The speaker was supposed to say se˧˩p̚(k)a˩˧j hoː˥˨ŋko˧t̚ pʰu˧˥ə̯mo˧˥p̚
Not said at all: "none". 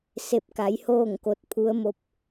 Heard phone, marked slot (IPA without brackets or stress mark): k